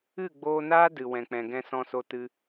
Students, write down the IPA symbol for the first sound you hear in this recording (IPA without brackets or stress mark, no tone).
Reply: ɨ